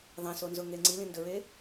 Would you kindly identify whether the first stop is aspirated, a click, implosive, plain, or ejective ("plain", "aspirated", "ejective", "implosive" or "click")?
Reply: click